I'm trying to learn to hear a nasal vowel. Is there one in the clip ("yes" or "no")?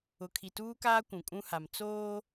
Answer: yes